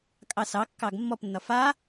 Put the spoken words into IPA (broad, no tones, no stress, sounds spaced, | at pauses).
kʼ ɑ s ɑ kː ɑ ɡ mː ɔ p nː ɒ f a